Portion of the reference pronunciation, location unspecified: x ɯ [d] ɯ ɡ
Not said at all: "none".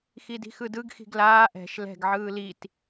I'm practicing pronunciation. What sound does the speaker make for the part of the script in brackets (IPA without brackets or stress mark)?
d